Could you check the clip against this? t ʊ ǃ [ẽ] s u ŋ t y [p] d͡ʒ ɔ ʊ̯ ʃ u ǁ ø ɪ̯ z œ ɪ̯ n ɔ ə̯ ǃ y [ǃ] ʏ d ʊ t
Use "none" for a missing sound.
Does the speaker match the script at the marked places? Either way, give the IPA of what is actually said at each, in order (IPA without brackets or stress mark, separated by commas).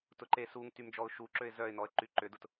e, m, ǃ